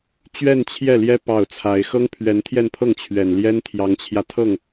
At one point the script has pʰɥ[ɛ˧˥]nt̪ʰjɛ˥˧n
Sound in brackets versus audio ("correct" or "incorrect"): correct